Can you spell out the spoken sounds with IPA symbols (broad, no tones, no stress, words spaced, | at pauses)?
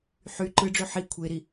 ħy ǃɯɖ͡ʐø ħi kʷʰeɾi